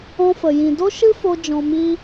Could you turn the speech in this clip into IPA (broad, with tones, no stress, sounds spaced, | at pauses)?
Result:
ɔ̃˦ f ə˨ j ĩ˨ d o˦ ʃ ɨ˦ f o˧ d͡ʒ ɔ̃˧ m i˦